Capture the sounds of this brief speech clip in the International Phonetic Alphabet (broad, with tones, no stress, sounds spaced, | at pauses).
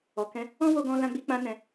ɔ˨ k ɛ̃˧ | ɔ̃˦ w o˧ ɡ ɔ̃˧ l ã˧ ɡ͡b i˧ k͡p ã˧ n ɛ̃˧